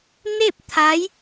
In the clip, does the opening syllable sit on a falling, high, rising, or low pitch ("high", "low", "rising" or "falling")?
falling